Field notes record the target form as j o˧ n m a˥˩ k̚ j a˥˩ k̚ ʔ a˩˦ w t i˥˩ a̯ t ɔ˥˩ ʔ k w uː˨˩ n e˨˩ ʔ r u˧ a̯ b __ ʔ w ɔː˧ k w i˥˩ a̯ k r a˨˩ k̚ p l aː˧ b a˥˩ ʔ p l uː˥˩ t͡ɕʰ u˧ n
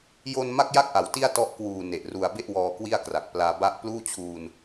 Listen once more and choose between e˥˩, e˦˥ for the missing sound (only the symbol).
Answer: e˥˩